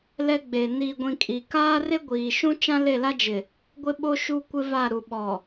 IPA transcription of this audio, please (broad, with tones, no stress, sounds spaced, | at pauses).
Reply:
l ɛ˦ ɡ͡b e˨ n iː˨ ɡʷ ĩ˨ kʼ i˨ k aː˦ r e˦ ɡʷ iː˨ ʃ ũ˦ t͡ʃ ã˦ l e˦˨ l a˦ d͡ʒ ɪ˨ | ɡʷ ɪ˦ ɓ o˦ ʃ u˦ kʷ ɪ˦ v a˦˨ ɾ u˨ ɓ ɔ˨